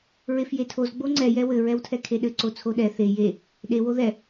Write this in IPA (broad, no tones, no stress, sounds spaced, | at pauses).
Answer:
ɹ e f j e tʰ o z ɡ͡b o ŋ͡ǀ ɛ j ɛ w ɘ ɹ ɛ w tʰ ɛ kʰ e ɗ ɘ ǀ o t͡sʰ o ɗ ɛ θ e j e | ɗ e w o ð ɛ